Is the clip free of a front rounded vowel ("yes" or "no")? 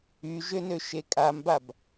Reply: no